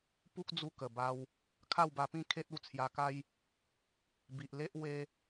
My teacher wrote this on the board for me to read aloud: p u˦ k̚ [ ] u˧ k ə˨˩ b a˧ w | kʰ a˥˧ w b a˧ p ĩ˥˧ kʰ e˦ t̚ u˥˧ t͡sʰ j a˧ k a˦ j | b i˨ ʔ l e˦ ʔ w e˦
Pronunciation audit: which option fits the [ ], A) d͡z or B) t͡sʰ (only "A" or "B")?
A